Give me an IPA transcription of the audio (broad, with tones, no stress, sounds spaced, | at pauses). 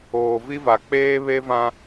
oː˨ v i˦ v a˨ k͡p eː˦ β e˦ v ã˦